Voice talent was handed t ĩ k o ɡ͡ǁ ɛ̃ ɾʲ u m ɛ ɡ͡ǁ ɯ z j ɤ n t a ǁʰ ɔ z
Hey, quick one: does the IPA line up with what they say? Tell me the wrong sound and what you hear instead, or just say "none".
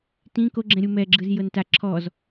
none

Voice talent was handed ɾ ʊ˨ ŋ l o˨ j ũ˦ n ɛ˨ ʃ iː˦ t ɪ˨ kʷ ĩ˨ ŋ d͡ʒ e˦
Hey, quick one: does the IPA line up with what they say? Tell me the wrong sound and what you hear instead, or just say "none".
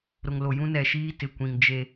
none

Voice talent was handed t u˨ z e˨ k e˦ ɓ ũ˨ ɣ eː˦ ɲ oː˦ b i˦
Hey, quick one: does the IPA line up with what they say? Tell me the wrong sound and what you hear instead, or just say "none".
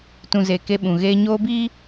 u˨ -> ũ˨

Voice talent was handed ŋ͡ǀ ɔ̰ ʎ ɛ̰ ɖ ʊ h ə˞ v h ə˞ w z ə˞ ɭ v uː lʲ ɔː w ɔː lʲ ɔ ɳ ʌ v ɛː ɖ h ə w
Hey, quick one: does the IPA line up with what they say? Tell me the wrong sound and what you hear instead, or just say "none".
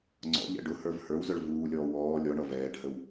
none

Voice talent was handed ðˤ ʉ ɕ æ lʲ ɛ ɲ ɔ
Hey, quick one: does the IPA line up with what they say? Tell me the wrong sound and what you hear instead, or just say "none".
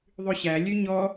ɛ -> ø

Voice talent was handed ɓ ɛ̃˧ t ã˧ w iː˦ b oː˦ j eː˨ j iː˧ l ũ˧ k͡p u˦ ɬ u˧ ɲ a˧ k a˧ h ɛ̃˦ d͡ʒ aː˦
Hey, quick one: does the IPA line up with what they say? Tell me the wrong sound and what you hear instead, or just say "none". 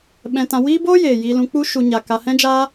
ɬ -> ʃ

